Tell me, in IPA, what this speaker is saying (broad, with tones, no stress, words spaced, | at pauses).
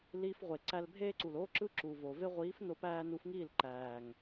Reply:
liː˧fʁʷe˨ ǀæ˧lbʱeː˦ǀu˨lo˦ ǁɯ˦ǁuː˨voː˨ ve˧ʁʷiː˨˦f no˧pæː˧nu˨˦fŋiː˦˨l ǃæː˨ŋ